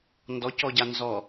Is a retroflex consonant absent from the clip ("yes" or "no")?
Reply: yes